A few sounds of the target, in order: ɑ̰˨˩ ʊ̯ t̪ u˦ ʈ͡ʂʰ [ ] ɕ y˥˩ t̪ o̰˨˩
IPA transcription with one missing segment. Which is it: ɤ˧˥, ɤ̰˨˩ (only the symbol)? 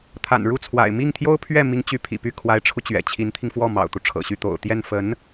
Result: ɤ̰˨˩